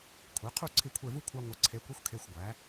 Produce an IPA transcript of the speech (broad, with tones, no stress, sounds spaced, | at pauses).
kʷʰ e˩˧ qʰ u˦˨ ǀʰ i˦˨ kʷʰ e˦˨ v u˥ kʷʰ a˥ ŋʷ ə˧˥ ǀʰ e˧˥ kʷ i˥ xʷ kʰ e˧˥˧ xʷ ɡʷ æ˩˥